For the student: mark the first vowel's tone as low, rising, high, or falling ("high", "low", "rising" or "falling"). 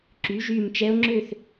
rising